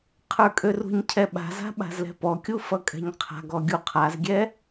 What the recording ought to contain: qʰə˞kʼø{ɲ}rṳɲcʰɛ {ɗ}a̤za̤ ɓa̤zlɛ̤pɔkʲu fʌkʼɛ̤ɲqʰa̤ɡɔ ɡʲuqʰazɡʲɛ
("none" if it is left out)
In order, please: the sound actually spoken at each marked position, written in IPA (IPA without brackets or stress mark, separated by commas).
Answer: none, ɓ